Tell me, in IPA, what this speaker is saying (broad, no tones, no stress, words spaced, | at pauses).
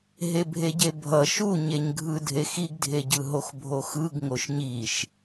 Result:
ɦebʱeɟebʱʌ ʃuɲeɲɡʱɯ dʱexiɡdʱeɟɯ ɦoxbʱoxɯɡ ŋoʃɲiʃ